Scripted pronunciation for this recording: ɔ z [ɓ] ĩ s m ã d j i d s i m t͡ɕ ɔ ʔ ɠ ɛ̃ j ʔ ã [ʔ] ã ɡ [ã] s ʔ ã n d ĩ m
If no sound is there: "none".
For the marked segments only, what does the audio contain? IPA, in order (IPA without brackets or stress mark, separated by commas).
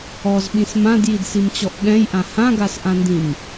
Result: ɓ, h, a